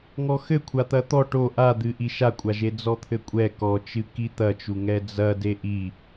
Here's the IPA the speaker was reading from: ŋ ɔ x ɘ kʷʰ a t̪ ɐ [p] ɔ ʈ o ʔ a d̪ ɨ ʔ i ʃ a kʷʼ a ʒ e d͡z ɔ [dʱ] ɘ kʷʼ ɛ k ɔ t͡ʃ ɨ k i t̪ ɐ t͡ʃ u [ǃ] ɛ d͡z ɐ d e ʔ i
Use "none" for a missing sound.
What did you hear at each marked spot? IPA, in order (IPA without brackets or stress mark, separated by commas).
t̪, t̪ʰ, ŋ